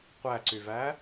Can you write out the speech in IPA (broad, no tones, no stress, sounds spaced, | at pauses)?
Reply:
qʷ æ ǀ y v æ